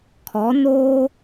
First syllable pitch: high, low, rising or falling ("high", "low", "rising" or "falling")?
rising